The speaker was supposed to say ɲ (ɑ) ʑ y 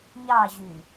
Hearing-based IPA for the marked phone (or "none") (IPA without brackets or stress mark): ɑ